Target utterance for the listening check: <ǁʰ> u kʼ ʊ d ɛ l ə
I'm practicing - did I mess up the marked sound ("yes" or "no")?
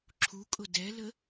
no